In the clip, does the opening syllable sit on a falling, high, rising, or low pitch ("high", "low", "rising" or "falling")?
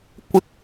high